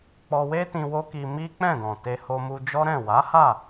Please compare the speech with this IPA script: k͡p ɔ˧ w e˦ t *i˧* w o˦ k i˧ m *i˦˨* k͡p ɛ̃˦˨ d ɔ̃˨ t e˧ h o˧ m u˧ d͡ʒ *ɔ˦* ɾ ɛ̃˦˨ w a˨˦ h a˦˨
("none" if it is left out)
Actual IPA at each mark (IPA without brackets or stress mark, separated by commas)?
ĩ˧, i˦, ɔ˦